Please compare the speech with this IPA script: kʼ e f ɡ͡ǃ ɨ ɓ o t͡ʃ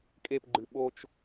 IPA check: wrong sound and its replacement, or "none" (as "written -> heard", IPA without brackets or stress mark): f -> p